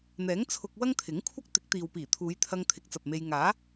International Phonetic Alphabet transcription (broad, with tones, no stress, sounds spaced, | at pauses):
n̪ ɛː˨˥ ŋ t͡sʰ ʊ˧ k̚ w ɐ˥ ŋ t̪ʰ ɪ˨˥ ŋ kʷʰ ɐ˥ k̚ t̪ ɪ˨˥ k̚ t̪ iː˨ w p iː˨˩ t̪ʰ uː˨˧ j t̪ʰ ɐ˧ ŋ t̪ʰ ɪ˨˥ k̚ t͡s ɐ˨ p̚ m e˧ j ŋ aː˨˥